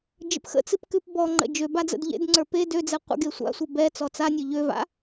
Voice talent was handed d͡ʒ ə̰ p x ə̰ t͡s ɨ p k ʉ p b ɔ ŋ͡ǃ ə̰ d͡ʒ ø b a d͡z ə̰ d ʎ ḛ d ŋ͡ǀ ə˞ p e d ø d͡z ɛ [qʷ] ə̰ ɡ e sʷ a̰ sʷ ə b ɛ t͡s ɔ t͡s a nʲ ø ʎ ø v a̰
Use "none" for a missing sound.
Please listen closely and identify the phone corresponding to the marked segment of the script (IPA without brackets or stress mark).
qʷ